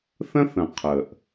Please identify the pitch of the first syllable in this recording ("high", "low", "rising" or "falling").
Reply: high